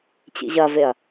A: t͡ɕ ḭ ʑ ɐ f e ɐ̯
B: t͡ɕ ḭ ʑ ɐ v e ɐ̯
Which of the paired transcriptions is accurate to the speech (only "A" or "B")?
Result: B